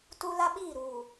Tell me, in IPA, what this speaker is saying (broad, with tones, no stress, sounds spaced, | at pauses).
t u˦ l a˦ ɓ iː˦˨ ɾ uː˨